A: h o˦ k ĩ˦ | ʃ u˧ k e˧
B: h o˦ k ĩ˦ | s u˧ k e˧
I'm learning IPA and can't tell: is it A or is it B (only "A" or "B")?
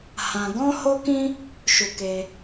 A